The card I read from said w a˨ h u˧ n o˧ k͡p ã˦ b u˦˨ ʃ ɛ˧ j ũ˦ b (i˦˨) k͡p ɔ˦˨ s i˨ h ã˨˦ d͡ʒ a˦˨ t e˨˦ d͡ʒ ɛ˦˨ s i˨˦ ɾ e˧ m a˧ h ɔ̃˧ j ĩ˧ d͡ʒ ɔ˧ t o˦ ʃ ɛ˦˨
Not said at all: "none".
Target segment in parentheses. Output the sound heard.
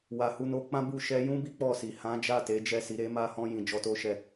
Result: i˦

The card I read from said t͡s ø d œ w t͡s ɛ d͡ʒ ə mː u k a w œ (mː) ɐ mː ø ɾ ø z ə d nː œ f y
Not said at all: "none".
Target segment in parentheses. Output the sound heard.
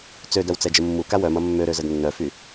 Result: m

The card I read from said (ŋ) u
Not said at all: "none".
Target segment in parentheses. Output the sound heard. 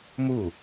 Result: m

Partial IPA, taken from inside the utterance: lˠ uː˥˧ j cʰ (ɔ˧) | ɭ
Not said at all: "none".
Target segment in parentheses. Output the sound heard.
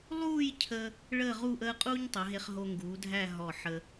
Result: ə˧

